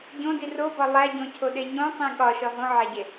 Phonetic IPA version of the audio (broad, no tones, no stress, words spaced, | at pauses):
ɟõdi robɒ lˠæɟõcʰoɗe ɲõsˤĩ ɠɒʃɒ ɦõʕæɟe